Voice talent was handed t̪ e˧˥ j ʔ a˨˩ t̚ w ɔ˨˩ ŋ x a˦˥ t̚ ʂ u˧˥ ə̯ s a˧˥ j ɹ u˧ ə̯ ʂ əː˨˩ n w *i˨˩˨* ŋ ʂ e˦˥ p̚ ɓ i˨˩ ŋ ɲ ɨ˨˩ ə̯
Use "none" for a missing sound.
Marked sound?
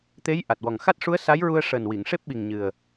i˨˩˨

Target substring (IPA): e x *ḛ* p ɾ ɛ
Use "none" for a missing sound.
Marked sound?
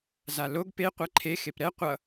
e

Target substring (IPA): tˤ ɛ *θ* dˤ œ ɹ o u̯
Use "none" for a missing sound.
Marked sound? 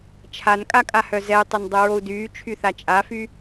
n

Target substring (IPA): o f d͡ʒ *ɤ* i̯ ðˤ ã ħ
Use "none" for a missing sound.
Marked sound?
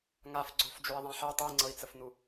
o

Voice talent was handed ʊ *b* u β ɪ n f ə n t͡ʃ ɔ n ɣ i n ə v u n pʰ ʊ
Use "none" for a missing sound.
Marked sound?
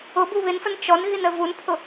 b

